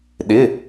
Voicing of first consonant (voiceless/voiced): voiced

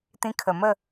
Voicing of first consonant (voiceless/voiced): voiceless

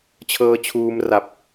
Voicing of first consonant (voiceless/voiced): voiceless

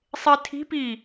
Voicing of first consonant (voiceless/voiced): voiceless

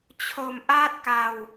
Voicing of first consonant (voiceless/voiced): voiceless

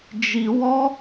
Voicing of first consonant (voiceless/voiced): voiced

